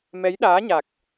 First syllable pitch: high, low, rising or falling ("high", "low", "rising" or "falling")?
rising